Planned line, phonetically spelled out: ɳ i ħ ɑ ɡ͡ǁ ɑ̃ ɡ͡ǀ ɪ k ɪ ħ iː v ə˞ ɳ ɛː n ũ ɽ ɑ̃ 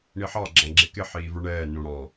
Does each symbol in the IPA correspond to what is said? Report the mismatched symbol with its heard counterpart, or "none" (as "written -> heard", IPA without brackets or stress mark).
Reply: ɡ͡ǀ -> ɡ͡ǁ